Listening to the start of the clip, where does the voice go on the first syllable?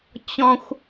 high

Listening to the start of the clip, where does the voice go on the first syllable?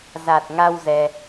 low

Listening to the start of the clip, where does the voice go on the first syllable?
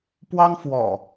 high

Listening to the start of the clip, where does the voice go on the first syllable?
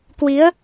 rising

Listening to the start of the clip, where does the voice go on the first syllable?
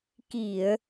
low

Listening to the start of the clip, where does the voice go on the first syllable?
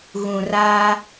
low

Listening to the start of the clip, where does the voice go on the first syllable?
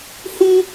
high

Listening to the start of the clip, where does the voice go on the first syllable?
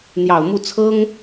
low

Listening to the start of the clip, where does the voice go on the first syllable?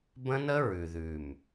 high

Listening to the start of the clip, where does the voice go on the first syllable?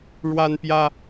high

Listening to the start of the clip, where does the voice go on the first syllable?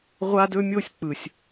high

